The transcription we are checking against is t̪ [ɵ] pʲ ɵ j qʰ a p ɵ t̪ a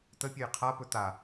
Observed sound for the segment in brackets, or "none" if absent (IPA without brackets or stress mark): ə